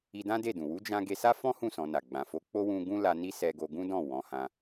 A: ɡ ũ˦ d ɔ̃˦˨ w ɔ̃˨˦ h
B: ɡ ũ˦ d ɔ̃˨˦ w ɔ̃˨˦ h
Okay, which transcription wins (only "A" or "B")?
A